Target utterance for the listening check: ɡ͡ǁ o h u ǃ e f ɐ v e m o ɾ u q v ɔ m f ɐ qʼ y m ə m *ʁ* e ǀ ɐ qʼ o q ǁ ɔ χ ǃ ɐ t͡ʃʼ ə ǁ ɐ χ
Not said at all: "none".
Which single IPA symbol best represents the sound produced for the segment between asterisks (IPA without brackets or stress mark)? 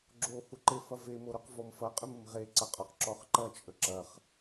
ʁ